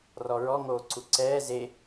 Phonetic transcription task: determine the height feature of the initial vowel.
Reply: mid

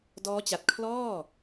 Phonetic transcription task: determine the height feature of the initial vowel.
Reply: mid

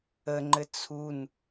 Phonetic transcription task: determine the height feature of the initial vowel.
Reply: mid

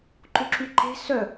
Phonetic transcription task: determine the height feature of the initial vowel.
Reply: high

